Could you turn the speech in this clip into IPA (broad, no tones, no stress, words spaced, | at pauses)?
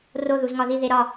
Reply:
ro ðuzŋɒði ðeɾɒ